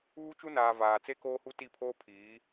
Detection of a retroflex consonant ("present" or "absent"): absent